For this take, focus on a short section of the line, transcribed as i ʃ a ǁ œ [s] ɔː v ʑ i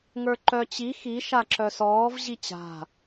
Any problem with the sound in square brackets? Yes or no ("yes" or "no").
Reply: no